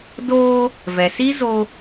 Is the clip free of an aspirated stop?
yes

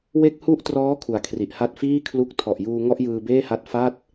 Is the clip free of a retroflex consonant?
yes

